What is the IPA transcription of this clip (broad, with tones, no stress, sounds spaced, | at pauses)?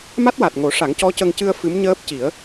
m a˦˥ t̚ w a˨˩ t̚ ŋ o˨˩˦ ʂ a˨˩˦ ŋ c ɔ˧˥ c ə˧ ŋ c ɨ˧ ə̯ f ɨ˧˥ m ɲ əː˦˥ p̚ c i˨˩˦ ə̯